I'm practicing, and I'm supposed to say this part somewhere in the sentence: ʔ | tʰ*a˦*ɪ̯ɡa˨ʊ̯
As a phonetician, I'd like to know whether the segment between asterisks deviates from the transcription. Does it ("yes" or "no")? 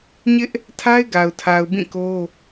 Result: no